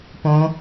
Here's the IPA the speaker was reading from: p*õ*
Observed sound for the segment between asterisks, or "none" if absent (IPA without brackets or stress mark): õ